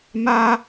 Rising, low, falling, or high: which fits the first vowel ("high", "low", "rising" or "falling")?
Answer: high